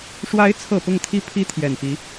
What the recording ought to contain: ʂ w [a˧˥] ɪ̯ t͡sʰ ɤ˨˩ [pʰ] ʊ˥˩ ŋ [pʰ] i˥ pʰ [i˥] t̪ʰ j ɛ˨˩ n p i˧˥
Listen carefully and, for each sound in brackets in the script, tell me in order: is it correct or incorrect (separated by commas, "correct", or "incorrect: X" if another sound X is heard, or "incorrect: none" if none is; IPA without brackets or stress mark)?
correct, incorrect: p, incorrect: t̪ʰ, correct